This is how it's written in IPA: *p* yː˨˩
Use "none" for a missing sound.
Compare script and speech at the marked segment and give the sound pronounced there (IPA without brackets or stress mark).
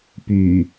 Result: p